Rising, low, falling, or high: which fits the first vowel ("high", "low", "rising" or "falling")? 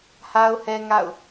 high